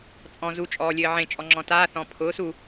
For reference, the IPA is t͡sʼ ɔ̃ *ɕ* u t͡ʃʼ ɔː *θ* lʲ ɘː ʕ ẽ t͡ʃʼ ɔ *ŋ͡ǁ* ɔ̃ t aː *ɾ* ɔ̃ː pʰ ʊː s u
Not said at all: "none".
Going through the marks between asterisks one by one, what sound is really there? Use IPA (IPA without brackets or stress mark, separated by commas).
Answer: z, none, ŋ͡ǁ, θ